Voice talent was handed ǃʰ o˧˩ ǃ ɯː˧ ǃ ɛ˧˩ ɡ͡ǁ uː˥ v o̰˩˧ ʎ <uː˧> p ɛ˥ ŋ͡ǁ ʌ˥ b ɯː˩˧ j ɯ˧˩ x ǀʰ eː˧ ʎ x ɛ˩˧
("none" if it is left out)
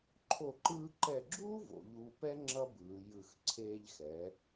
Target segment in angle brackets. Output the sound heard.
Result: uː˧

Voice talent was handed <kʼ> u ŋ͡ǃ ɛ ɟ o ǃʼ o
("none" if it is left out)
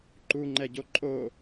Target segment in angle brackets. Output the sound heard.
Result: ǃ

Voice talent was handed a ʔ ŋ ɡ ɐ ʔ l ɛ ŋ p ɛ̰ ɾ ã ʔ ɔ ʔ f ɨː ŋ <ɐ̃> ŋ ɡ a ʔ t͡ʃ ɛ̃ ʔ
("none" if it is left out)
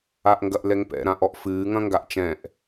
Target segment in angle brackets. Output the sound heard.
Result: ɐ̃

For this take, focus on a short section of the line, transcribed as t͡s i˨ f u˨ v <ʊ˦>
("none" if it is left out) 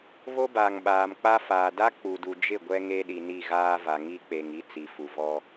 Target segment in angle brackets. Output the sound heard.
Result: ɔ˦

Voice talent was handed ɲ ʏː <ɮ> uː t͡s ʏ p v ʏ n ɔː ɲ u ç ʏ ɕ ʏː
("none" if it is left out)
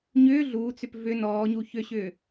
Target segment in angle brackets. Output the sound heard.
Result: ɮ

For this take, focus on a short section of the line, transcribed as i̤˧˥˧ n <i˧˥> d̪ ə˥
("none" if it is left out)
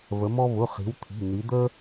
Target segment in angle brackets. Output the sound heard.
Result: i˧˥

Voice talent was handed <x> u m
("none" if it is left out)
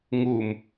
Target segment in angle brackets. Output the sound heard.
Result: ŋ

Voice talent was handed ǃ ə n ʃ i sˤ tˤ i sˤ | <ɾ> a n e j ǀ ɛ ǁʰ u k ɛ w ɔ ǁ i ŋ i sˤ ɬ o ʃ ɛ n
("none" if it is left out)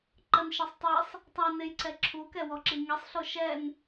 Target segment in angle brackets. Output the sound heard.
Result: tˤ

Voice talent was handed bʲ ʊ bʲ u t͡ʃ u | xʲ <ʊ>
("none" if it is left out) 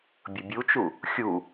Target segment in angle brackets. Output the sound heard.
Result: u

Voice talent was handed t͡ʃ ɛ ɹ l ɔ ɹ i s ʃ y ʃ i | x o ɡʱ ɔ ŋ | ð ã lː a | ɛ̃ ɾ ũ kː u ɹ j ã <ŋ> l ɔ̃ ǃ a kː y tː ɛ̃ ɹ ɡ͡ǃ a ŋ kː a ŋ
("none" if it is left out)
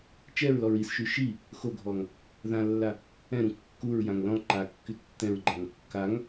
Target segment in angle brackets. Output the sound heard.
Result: ŋ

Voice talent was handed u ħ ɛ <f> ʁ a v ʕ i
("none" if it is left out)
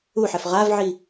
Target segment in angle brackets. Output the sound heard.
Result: f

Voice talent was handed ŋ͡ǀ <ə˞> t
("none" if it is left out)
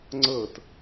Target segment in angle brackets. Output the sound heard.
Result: ɤ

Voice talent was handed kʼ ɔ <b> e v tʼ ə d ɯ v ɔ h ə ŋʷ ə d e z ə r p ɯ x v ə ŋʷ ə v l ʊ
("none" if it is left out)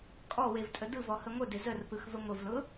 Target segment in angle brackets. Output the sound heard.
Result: w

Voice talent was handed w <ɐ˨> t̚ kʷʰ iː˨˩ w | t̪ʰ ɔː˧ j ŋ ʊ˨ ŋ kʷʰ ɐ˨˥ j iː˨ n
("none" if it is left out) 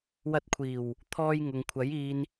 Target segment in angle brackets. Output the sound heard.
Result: ɐ˧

